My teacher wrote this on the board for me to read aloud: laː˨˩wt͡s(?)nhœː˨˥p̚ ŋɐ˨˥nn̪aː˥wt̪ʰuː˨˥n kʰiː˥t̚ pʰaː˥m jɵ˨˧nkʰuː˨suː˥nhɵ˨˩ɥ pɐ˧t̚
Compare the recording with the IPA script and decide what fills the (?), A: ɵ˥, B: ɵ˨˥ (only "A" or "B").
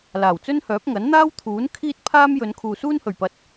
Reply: A